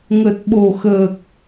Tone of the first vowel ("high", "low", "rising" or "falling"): low